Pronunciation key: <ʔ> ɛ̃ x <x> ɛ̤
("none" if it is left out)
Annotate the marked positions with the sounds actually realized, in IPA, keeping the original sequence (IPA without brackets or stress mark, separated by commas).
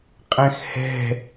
qʼ, h